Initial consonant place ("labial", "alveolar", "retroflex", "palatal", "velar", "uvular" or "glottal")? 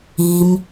labial